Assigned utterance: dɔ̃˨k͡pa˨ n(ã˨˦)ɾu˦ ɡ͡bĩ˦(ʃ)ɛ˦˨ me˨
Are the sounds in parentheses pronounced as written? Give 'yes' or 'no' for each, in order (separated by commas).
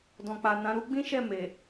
yes, yes